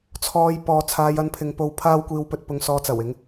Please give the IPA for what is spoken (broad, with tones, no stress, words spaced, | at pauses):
t͡sʰɔː˧j pɔː˧ t͡sʰaː˧j ɐ˧npʰɪ˨˧ŋpo˧w pʰaː˥wkʷiː˧wpɵ˧t̚ pʊ˧ŋsɔː˧t͡sɐ˨˩w ɪ˨˧ŋ